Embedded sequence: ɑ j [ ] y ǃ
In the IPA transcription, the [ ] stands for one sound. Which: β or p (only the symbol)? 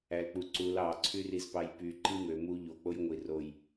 p